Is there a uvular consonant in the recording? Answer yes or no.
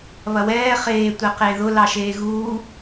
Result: yes